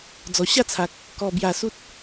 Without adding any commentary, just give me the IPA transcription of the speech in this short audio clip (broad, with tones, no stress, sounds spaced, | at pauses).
d͡z ɔ˨˩ ɕ a˥˧ t͡sʰ a˨ k̚ | k ɔ˨˩ b j a˨˩ s u˦ t̚